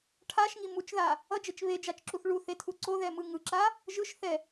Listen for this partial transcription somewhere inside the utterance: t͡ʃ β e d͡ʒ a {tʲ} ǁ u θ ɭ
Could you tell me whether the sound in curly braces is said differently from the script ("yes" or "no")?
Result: yes